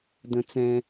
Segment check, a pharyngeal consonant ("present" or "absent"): absent